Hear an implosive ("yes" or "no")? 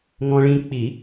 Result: no